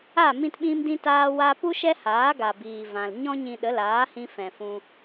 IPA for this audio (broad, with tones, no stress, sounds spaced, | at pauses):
a˦˨ m ĩ˧ t ɓ ĩ˧ m d ĩ˧ t aː˧ w a˧ p u˦ ʃ ɛ˦ h aː˨˦ ɡ a˨ b iː˨ v ã˨ l ɲ ɔ̃˦ ɲ ĩ˧ ɗ ə˨˦ l aː˨˦ h ĩ˧ f ɛ̃˨ f ũ˧